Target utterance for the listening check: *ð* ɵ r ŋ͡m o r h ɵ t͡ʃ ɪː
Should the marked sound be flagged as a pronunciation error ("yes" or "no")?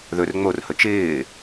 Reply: no